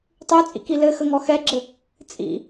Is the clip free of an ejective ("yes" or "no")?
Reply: no